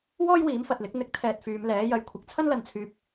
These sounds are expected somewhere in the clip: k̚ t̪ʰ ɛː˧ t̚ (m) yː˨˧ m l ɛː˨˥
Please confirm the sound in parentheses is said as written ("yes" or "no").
no